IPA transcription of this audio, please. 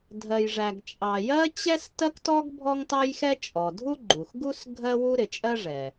dʱ ɜ˩ j ʐ æ˩ ɡ t͡ʃʼ ɑ˩ j ɜ˥ t͡ɕ ɛ˥ s t ɜ˥ k t ɔ˥ ɡ bʱ ɔ˥ ŋ t ɑ˥ j x ɛ˥ t͡ʃʼ ɔ˩ dʱ u˥ ɡ͡ǃ u˩ x ɡ u˥ s ɡʱ ɜ˥ w u˥ ɾ ɪ˩ t͡ʃʼ ɜ˥ ʐ ɛ˩

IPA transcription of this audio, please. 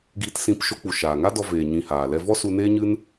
ɡ iː˧ t s ĩ˧ p ʃ o˧ k͡p u˨ ʃ aː˨ ŋ a˦ d ɔ˧ v eː˨ ɲ ĩ˨ h aː˨ l ɛ˧ v ɔ˦ s u˧ n eː˦ ɲ ɨ˦ n

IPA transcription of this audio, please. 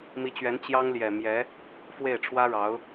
m i˧˥ t͡ɕ ɥ ɛ˧˥ n t͡ɕ j ɑ˥ ŋ l j ɛ˨˩ m j ɛ˧˥ | f w e˥˩ ɪ̯ ʈ͡ʂʰ w ä˥ ɻ ɑ˧˥ ʊ̯

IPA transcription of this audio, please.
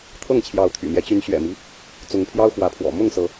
t̪ʰ ɤ˥˨ ŋ t͡ɕʰ j ɑ˨˦ ʊ̯ t̪ʰ y̰˨˩ m j ɛ˦ t͡ɕ y˨˦ n ɕ ɥ ɛ̰˨˩ m i˦ | t͡s ʊ˨˦ ŋ pʰ j ɑ˦ ʊ̯ x w ä˨˦ pʰ w ɔ̰˨˩ m ʊ˥˨ ŋ s ɤ˨˦

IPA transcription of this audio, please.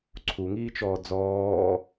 ǀʰ u ŋ iː t͡ʃ ɔː d͡z ɔː

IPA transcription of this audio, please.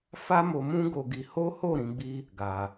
f a˦ m o˧ m ũ˦ ɡ o˧ ɡ i˧ h o˦ h o˦˨ ɾ ĩ˨˦ ɡ͡b i˦ | ɡ a˧

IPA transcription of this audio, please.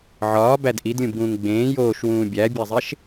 ʕ ɒː b æ d ʔ i d lʲ ũ b ɡ ũː ŋ ɡ͡b ẽː j oː ʃ w ũː bʲ æ bʲ æ zˤ e ʃ

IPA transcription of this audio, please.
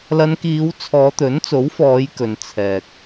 l ɐ˨˧ n k iː˨˧ w t͡sʰ ɔː˨˧ t̪ ɵ˨˥ n t͡s o˨˥ w f ɔː˨˧ j k ɵ˨ n t͡sʰ ɛː˨ k̚

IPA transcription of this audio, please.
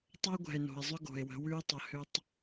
tˤ ɤ˦ ɡʷ ɛ̤˨ e̯ n o̤˨ e̯ zˤ ʏ˦ ɡ o̤˨ e̯ w ə̤˨˦ w ʉ˦ e̯ tˤ ə˨ h ʏ˦ tˤ

